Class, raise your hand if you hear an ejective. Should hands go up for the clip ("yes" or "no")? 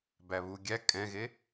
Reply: yes